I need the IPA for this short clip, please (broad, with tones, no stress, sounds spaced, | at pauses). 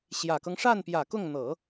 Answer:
ɕ j ä˨˩ k ɤ˦ ŋ ʂ a˥˩ n p j ä˨˩ k ʊ˥˩ ŋ n̪ ɤ˨˩˦